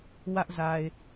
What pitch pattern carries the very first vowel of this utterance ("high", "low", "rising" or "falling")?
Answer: high